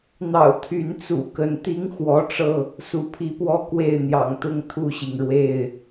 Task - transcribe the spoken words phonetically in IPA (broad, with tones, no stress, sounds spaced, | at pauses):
n̪ ɑ̰˨˩ ʊ̯ t̪ʰ y˨˦ n t͡s ṵ˨˩ k ə˨˦ n t̪ i˦ ŋ x w ɔ˨˦ ʈ͡ʂ ɤ˧ | s u˨˦ pʰ i˨˦ p w ɔ˦ k w e˥˨ ɪ̯ n̪ j ɑ̰˨˩ ŋ t̪ ʊ˦ ŋ t̪ʰ u˥˨ ɕ i˩ ŋ ɻ w e˥˨ ɪ̯